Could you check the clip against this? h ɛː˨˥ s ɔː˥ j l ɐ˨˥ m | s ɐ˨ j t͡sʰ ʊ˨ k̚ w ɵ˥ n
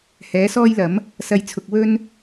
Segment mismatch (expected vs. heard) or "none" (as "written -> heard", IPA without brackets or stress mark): none